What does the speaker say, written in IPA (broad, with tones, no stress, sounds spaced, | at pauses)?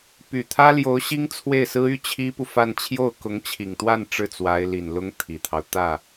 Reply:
p y˨˩ t̪ʰ ä˥ l j o˧˥ ʊ̯ ɕ i˥ ŋ t͡sʰ w e˥˩ ɪ̯ s ɹ̩˥ y˥ t͡ɕʰ i˥ p u˨ f a˥˧ n t͡ɕʰ j o˥˩ ʊ̯ k ʊ˧˥ ŋ t͡ɕʰ i˨˩ ŋ t̪ w a˥˧ n ʈ͡ʂ ɻ̩˥˩ t͡s w a˧˥ ɪ̯ l i˨˩ n l ʊ˥ ŋ t̪ʰ i˨˩ t̪ʰ ɑ˦ ʊ̯ t̪ ä˥˩